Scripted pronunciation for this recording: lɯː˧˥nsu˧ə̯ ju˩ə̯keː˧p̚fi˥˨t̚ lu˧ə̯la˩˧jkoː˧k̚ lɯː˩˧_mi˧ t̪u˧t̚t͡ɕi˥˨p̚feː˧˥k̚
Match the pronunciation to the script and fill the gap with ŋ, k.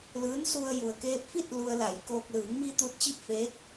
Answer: ŋ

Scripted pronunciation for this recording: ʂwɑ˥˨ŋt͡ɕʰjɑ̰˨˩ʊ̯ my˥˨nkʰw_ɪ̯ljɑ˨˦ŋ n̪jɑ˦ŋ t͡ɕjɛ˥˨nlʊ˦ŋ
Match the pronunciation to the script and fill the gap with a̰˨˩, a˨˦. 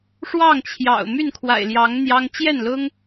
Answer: a̰˨˩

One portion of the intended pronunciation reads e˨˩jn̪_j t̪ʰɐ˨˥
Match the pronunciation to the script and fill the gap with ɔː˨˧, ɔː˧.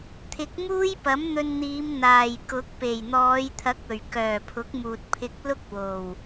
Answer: ɔː˨˧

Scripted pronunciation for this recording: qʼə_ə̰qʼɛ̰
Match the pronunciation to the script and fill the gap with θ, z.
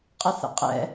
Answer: θ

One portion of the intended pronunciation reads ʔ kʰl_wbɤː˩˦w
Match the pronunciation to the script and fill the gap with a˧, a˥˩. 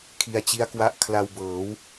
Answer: a˧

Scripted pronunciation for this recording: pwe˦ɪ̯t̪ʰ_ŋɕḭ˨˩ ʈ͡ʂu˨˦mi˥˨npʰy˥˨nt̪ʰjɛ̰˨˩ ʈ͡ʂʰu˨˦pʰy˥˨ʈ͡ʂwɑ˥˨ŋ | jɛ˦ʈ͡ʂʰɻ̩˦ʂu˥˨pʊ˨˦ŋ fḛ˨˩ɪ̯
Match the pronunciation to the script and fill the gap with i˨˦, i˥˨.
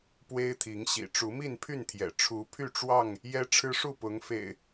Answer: i˨˦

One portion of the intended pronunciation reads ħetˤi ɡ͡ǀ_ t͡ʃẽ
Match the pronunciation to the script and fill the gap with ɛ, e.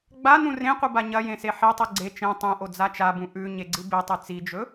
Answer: e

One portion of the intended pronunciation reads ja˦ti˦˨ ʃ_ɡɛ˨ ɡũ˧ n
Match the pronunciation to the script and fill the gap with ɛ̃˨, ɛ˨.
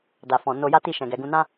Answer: ɛ̃˨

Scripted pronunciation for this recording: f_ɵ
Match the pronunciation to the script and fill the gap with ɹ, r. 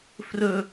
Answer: r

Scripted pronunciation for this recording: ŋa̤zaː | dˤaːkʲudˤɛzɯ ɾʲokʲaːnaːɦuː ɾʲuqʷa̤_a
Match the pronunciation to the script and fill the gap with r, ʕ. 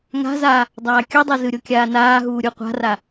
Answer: r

